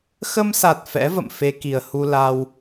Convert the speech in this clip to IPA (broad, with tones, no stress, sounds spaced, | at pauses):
x ə˧ m s a˨˩ t̚ f ɛ̰˧˥ v ə̰˧˨ m f e˧ k i˨˩ ə̯ h u˧ l a˧ w